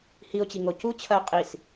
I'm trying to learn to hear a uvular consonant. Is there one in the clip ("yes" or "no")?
yes